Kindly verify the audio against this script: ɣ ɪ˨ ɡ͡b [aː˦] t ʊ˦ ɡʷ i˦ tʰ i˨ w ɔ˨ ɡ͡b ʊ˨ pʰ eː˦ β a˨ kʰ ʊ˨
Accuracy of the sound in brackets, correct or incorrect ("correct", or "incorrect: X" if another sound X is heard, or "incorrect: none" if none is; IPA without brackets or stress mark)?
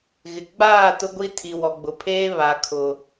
incorrect: aː˦˨